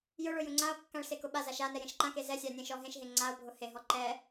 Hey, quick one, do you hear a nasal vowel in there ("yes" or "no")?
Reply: yes